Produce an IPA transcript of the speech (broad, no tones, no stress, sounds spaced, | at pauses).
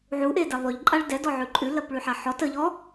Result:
ʕ u ʔ e d ɛ lˠ y ʎ ǃʼ a ɭ d ɛ d ɔ ʕ ʉ ǃʼ ʉ l ɜ p ɭ y ħ a ħ ɔ t ə ʎ ɔ